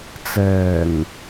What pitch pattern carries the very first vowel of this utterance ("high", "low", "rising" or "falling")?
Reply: low